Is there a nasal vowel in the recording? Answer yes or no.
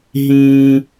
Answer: yes